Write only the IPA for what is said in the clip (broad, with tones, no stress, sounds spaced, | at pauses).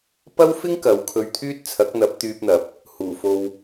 p ɐ˥ w f ɪ˥ ŋ k ɐ˨˥ w kʰ ɵ˧ ɥ t̪ʰ yː˥ t̚ t͡sʰ ɐ˨˥ k̚ n̪ ɐ˨˥ p̚ t̪ yː˧ p̚ n̪ ɐ˨˥ p̚ | h uː˨˩ f o˨ w